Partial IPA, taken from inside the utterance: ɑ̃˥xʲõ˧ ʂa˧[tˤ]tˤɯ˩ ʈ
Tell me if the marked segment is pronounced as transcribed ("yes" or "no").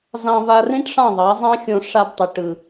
no